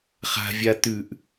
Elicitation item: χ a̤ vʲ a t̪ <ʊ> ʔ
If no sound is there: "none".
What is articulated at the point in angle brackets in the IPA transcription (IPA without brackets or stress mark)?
ʉ